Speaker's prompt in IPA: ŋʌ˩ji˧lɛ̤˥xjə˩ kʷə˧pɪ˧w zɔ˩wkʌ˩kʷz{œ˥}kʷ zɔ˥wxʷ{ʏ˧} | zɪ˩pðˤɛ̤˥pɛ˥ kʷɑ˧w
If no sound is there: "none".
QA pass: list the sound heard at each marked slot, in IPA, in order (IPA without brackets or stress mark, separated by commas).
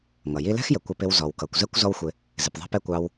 ɛ˥, ɪ˧